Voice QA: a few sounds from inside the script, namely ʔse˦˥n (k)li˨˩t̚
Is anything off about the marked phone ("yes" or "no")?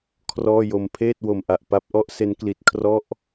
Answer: no